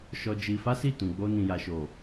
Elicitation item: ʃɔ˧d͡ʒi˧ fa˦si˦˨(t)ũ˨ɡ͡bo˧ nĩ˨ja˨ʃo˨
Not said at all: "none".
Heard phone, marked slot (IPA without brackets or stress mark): t